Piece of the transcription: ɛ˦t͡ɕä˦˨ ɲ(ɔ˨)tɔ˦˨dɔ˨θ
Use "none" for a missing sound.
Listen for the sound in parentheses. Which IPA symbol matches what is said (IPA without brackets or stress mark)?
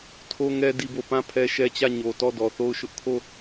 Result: o˨